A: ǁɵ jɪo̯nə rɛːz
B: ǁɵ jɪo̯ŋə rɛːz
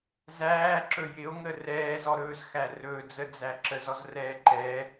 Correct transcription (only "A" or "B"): B